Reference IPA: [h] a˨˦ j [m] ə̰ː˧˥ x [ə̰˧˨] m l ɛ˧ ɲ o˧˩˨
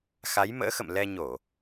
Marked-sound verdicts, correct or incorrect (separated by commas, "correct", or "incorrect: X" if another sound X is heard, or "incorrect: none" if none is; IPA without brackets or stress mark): incorrect: x, correct, correct